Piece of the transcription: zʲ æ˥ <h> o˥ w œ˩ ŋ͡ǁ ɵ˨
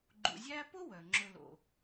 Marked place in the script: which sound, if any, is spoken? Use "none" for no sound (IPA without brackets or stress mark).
p